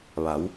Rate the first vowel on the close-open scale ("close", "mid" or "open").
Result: open